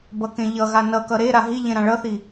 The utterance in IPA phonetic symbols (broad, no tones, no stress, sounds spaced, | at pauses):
b ʌ k ẽ ʎ ʌ ɣ a n ʌ k ʌ ɾ e ɾ a ɦ i ʎ ẽ ɾ ã ɭ ʌ θ i